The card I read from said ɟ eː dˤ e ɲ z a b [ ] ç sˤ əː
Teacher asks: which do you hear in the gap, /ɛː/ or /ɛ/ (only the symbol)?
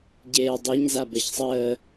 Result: ɛ